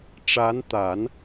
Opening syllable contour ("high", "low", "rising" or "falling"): rising